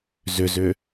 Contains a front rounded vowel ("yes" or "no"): yes